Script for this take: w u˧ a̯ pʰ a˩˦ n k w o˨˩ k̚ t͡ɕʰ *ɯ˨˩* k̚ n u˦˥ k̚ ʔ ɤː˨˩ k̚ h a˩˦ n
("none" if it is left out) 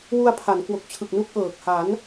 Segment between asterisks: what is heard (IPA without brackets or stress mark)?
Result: ɯ˨˩